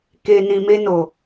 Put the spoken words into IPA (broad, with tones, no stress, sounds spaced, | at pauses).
k e˨ n ĩ˨ m e˧ n o˨